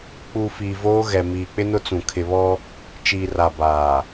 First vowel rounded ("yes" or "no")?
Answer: yes